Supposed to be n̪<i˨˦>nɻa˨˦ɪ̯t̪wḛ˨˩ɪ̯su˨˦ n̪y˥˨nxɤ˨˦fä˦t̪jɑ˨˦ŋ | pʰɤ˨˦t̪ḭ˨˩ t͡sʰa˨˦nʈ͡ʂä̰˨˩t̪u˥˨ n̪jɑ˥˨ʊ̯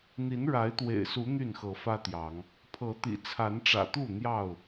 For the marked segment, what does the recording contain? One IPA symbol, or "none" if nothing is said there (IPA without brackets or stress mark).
i˨˦